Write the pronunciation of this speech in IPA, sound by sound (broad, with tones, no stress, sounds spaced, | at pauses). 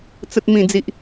t͡s ə˨ t̚ m ĩ˨˩ d͡z i˨ ʔ